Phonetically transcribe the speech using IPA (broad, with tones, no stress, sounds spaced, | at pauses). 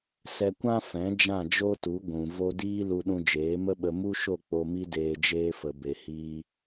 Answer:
s ɛ˧ kʷ ã˦ f ɛ̃˨˦ d͡ʒ ã˦˨ d͡ʒ o˦ t u˨˦ ɡʷ ũ˨ v o˧ d iː˦ l u˧ ɗ ũ˧ d͡ʒ eː˨˦ m ə˦ ɓ ə˧ m u˦ ʃ o˦˨ k͡p o˧ m i˦ d eː˧ d͡ʒ eː˧ f ə˨ b e˨ h iː˧